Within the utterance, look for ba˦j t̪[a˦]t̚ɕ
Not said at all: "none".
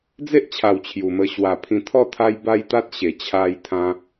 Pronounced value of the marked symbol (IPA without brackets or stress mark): a˦